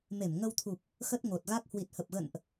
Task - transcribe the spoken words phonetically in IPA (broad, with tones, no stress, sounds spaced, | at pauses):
m e˧˩ m ŋ ə˧ w t̪ʰ u˨˩ p̚ | x ə˦˥ t̚ ŋ o˨˩ t̚ ɣ a˦˥ k̚ h w i˨˩ t̚ h ə˨˩ p̚ ɣ ə̰˧˨ n ʔ